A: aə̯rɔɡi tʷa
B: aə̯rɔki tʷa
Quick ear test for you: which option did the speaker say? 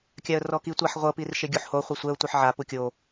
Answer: B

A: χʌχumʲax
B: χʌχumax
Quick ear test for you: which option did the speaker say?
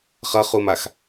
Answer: B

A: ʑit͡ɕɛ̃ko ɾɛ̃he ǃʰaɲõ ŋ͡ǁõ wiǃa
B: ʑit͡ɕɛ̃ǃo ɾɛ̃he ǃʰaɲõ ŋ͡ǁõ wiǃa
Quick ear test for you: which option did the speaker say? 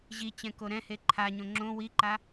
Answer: A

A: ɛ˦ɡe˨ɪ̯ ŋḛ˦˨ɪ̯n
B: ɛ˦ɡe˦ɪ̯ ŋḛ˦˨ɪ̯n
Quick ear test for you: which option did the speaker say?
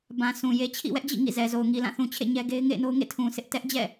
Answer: B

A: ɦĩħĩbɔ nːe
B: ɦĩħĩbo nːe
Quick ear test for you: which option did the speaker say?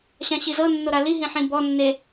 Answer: A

